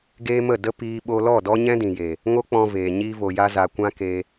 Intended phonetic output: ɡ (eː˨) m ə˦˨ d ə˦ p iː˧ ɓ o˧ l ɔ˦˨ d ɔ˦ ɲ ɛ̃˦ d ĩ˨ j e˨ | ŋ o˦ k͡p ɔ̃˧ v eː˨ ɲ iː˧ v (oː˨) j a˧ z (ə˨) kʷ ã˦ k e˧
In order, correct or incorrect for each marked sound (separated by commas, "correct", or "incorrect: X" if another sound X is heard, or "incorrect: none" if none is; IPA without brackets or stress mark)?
incorrect: eː˦, incorrect: o˨, incorrect: a˨